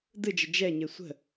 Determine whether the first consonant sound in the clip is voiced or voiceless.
voiced